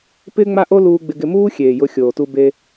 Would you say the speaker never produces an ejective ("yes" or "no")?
yes